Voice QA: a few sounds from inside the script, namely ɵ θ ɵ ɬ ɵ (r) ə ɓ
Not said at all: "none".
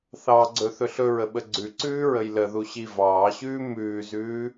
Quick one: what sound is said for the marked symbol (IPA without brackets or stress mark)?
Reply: ɹ